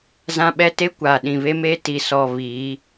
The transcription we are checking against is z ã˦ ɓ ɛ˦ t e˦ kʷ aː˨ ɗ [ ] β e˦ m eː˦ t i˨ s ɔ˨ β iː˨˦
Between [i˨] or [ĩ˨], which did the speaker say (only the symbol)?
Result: ĩ˨